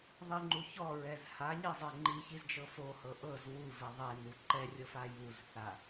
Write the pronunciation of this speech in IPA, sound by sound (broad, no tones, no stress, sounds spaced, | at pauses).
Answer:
ðˤ i ŋ͡ǃ u ç ɔ ɹ ɛ z h a ɲ i zˤ e ŋ͡ǃ i ç i z d͡ʒ ɤ f o h ɤ ʔ ɤ z w u v ɛ ðˤ e n u ǃ ɛ rʲ ɤ f a j u z θ a